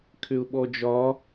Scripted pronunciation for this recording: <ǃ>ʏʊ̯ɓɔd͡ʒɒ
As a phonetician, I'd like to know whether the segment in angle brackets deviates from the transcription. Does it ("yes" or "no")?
yes